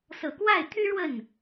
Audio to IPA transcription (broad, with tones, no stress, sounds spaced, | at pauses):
s ɤ˨˩ k w a˥˩ ɪ̯ t̪ʰ y˥ ɻ w ə˥˩ n